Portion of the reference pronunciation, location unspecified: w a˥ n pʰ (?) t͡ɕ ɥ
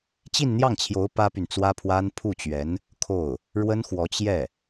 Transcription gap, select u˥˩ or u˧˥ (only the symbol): u˥˩